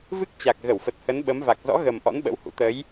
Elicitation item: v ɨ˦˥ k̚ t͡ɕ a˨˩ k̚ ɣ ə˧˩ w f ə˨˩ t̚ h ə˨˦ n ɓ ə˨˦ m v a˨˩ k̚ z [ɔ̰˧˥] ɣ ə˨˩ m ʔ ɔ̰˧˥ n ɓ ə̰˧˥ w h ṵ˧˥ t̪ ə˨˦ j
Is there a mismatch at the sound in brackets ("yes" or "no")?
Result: no